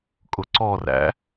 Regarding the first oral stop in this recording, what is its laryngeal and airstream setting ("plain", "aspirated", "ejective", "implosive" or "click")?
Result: ejective